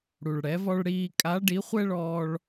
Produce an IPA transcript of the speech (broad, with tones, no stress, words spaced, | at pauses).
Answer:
ɽu˩ɭɽɛ˩˧vɔ˧ɭ ɽiː˧ kʼa˧˥ɖi˧˥χʷɛ˥ɭɔː˧ɭ